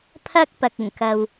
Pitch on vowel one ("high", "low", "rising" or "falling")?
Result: high